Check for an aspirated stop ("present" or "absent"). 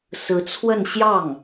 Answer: present